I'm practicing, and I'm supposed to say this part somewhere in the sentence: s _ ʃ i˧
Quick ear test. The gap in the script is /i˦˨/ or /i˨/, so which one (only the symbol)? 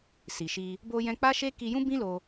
i˨